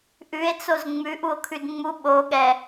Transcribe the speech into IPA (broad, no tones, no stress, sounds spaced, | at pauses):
ʔ ʉ e̯ t͡s o z ŋ͡m ʉ ʔ u o̯ kʰ ʉ d ŋ͡m u ɓ o ɠ ɛ